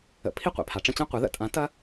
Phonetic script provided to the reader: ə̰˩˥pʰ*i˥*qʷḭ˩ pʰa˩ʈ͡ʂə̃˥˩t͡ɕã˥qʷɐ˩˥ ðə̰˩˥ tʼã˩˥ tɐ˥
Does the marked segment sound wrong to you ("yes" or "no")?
no